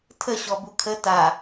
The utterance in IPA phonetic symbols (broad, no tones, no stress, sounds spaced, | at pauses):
tʰ ə ɕ ɔ b u kʰ ə t a